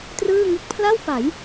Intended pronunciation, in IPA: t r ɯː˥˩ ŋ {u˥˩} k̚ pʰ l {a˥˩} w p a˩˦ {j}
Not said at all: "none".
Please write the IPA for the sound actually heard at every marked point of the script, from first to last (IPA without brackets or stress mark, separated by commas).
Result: ɯ˥˩, a˥˩, j